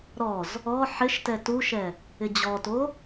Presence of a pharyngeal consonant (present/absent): present